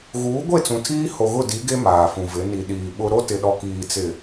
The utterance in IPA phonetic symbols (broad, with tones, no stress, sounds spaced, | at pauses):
ɣ uː˨˦ ɡʷ e˦˨ t͡s ũ˨ tʰ iː˦ h o˨ ɣ ʊ˦˨ d i˨˦ ɡ e˦ m aː˨ f ũ˨ v ɪ˨˦ n i˨ ɗ iː˨ ɓ ʊ˦ ɾ o˦ t ɪ˨ ɗ ɔ˨ k iː˨ t͡s ɪ˨